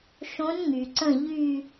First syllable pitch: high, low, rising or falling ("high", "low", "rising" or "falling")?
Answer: rising